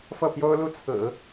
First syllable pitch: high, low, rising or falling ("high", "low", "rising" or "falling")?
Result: falling